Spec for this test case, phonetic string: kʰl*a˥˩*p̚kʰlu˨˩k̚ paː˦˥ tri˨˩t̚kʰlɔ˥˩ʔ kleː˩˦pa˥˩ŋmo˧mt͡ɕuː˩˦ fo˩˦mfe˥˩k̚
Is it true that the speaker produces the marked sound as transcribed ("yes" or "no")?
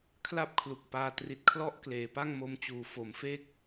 yes